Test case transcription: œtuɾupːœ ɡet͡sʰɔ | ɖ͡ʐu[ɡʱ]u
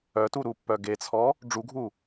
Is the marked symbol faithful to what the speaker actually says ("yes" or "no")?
yes